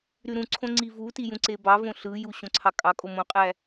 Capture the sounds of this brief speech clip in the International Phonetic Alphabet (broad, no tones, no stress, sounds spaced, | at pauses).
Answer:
ɾ y ɾ ũ ǀʰ õ ŋ͡ǀ i v u t i j ũ ǀ e b ɑ v õ ɬ ɯ j u ɕ õ ǀʰ ɑ kʼ ɑ kʼ o m õ qʼ æ